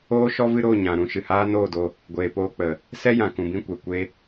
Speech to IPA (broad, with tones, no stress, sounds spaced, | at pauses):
oː˦ ʃ ɔ˦ v ɨ˦ ɾ o˦˨ ɲ ã˨ ɾ ũ˧ ʃ ɨ˨ h aː˦ n oː˦˨ d o˧ | ɡʷ eː˨ p oː˧ k͡p ə˨ | s ɛ˦ j ã˨ k ũ˨ b ĩ˦˨ kʷ ɛ˨ kʷ e˧